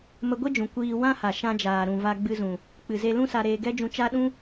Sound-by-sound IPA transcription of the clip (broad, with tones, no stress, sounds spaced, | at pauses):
m ə˧ ɡʷ e˦ d͡ʒ ũ˨ kʷ iː˧ w ã˦ h a˨ ʃ ã˧ d͡ʒ aː˨ ɾ ũ˨ v a˧ ɡ͡b ɨ˧ z ũ˨ | k͡p ɨ˨ z e˧ l ũ˦ s a˧ ɾ eː˧ ɡ ɛ˦ d͡ʒ ũ˧ t͡ʃ a˦ ɗ ũ˦